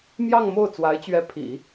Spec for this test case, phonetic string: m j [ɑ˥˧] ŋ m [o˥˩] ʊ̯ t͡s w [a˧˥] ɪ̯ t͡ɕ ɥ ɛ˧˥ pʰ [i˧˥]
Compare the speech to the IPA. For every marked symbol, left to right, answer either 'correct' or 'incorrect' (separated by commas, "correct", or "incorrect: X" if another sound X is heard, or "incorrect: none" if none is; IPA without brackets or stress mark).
correct, correct, correct, incorrect: ḭ˨˩˦